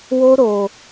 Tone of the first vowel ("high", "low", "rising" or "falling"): high